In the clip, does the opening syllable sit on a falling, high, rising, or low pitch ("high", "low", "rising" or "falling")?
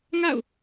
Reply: falling